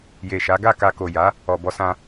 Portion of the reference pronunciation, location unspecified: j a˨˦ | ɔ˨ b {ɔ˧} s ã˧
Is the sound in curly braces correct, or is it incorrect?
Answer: correct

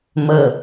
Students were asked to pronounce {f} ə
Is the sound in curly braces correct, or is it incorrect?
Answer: incorrect: m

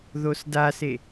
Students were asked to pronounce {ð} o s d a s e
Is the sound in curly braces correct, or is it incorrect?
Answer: correct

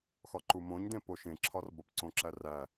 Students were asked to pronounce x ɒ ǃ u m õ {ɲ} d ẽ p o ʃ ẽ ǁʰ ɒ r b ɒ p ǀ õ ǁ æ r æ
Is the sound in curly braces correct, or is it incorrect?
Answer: correct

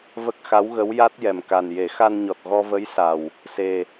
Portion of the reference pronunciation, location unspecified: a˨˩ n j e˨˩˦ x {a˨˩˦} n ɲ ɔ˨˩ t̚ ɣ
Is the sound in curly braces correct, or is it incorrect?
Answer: incorrect: a˧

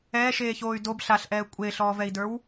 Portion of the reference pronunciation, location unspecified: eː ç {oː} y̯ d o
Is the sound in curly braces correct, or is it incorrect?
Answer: correct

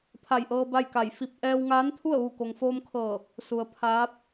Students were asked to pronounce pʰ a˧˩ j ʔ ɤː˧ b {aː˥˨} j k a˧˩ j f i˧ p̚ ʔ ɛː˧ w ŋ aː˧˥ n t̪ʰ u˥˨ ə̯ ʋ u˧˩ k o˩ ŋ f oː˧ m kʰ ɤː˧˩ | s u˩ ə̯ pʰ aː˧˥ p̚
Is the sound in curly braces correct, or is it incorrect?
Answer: incorrect: a˥˨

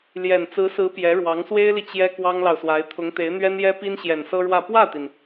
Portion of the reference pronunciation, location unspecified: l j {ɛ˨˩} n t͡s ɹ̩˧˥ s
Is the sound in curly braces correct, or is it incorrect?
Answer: correct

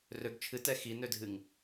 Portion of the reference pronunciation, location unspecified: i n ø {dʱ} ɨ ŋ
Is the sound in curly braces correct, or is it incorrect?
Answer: correct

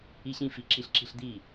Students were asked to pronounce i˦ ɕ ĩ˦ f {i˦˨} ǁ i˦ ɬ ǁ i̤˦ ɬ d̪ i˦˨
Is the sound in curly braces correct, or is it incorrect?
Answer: incorrect: i˨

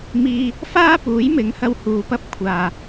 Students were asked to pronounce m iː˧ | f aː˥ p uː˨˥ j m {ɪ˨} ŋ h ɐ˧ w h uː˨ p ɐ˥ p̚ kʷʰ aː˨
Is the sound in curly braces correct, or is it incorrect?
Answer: incorrect: ɪ˨˥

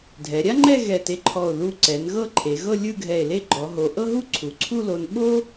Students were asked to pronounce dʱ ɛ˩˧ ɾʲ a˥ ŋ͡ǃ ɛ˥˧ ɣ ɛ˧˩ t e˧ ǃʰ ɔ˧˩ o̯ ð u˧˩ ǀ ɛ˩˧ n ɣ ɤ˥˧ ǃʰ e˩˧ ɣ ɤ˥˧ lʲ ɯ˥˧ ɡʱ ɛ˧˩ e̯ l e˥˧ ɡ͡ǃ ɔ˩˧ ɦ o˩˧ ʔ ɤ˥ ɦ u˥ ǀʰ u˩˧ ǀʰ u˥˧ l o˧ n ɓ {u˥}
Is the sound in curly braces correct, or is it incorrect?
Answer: incorrect: o˥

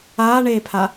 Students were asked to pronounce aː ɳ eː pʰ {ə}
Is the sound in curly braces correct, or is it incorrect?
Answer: incorrect: a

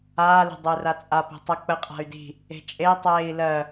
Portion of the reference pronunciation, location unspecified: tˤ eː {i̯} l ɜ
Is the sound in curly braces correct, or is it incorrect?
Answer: correct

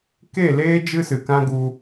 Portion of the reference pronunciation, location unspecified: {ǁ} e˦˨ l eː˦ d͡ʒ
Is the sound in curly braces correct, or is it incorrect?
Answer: incorrect: k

